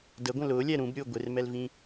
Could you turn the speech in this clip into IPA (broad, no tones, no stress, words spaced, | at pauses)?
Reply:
dəɡʷə̃ lʊːlʲɛ ɾũbɾʲʊː ɡʷɪrmɛlvĩ